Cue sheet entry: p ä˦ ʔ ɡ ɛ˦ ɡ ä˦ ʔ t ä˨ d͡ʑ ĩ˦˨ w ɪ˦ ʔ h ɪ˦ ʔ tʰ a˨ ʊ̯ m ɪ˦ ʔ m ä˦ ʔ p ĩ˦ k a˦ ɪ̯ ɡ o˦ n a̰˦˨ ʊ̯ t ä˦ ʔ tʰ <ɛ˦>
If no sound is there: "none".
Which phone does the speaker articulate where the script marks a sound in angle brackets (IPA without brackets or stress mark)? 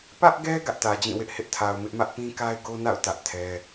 ɛ˦